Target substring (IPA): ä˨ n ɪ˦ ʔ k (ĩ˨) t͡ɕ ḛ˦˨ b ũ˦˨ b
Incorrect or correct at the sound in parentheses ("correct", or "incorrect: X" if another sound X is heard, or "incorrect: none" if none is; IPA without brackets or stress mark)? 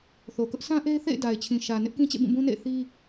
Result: incorrect: ĩ˦